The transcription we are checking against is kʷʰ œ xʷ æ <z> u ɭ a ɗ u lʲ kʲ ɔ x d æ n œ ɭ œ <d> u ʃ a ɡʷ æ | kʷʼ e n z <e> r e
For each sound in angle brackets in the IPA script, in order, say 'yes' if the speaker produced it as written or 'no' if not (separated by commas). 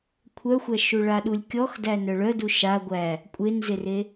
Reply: no, yes, yes